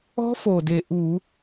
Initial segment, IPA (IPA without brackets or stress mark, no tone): ɔ̤